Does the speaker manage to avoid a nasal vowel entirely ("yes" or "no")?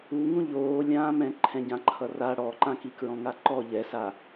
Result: no